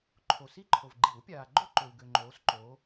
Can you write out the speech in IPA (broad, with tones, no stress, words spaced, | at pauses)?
ǃʰo˨si˥˧ǃʰo˨v ɡ͡ǃi˨˩˦wpʲaː˨ɡ͡ǃo˥˧ǃø˨w ɡø˨ŋ͡ǃoː˨˦sǃoː˨˦